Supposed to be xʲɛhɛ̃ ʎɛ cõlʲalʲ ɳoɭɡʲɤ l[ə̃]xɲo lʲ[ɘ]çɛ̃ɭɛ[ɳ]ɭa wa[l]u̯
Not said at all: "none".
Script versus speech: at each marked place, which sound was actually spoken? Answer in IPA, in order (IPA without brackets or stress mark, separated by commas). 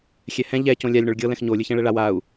ɛ̃, ɘ, none, none